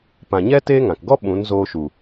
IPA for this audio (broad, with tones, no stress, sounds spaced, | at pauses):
p ã˨ ɲ ɛ˦ t eː˦ ŋ ã˨ k ɡ ɔ˦ ɓ ũ˨˦ n z oː˧ ʃ u˨